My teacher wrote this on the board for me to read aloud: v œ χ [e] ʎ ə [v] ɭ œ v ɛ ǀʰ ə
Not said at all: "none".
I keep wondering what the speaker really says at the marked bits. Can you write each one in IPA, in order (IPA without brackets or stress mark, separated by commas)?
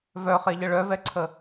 e, none